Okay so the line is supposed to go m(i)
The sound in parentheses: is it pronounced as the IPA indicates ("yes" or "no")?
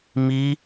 yes